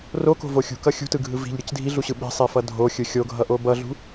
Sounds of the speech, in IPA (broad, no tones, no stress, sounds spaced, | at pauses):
r o k o̤ v o xʲ ṳ k ʌ xʲ ṳ t ɯ ɡʱ ɯ v i̤ ʎ ɾʲ ɯ c dʱ i ɮ u ɕ ɯ ɓ i̤ sˤ i f ʌ dʱ o xʲ ɯ xʲ o ɡʱ ʌ ʔ o b ʌ ɮ ṳ